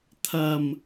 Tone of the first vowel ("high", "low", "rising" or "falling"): low